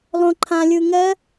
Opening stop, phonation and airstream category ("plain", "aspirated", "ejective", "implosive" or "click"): click